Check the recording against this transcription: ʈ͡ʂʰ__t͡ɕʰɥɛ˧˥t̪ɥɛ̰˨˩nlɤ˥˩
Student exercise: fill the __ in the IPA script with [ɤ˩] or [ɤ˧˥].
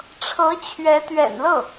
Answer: ɤ˧˥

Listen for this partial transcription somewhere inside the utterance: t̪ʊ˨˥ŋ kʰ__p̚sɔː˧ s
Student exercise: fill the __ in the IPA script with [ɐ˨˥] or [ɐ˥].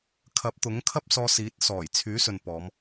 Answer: ɐ˥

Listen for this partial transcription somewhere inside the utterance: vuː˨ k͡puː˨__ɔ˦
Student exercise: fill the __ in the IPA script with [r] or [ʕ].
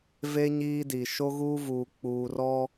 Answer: r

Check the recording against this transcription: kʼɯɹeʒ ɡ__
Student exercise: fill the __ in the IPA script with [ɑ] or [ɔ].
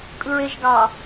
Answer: ɑ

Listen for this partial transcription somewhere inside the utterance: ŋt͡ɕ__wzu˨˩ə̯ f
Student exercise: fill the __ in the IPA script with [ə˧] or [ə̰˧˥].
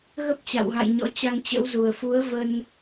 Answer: ə̰˧˥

